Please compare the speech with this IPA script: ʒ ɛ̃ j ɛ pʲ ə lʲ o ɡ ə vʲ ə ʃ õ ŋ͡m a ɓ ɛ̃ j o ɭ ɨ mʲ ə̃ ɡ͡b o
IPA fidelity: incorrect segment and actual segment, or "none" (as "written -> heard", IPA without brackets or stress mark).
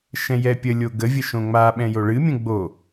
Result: ʒ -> ʃ